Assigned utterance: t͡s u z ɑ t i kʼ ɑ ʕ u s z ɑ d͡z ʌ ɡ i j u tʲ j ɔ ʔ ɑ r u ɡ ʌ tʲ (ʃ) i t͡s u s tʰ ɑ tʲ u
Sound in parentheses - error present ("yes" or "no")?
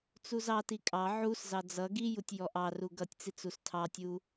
yes